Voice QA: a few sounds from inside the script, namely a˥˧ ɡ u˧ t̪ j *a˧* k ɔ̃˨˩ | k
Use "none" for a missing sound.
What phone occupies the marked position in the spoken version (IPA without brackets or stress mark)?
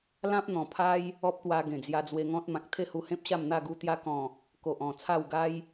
a˧